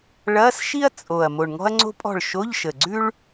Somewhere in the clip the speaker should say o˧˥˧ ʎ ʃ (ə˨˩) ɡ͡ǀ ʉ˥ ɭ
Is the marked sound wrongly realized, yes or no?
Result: no